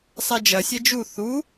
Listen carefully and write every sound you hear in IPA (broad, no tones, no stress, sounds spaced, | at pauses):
sˤ ɛ d͡ʒ ɐ sʲ ɛ d͡ʒ u θ u